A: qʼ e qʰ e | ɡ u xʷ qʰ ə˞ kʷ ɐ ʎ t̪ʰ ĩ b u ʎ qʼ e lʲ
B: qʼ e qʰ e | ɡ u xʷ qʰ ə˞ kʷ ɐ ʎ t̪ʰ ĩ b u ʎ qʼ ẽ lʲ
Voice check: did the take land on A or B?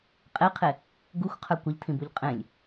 B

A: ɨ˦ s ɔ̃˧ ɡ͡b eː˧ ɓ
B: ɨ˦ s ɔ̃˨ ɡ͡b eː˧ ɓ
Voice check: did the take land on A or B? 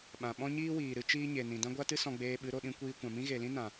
A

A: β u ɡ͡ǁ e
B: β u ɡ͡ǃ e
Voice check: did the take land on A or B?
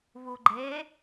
B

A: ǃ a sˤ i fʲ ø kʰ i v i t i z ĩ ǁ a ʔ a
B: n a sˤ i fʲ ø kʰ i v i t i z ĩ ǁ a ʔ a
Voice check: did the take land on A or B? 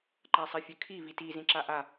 A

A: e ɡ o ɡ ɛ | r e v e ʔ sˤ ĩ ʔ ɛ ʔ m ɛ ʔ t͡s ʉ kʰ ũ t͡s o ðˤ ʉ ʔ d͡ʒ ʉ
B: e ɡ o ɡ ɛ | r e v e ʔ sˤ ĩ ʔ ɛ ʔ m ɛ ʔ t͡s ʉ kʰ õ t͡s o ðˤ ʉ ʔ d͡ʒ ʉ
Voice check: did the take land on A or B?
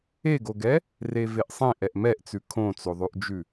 B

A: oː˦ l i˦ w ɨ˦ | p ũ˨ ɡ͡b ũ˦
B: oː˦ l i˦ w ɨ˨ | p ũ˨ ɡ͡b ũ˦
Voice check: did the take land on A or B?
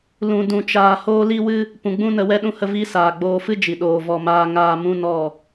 A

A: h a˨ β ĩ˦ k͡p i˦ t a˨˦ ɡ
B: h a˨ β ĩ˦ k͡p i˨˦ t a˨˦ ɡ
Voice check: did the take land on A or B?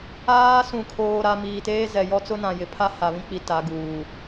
B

